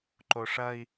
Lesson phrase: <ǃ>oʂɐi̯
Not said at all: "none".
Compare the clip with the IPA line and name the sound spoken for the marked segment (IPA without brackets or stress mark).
ǃ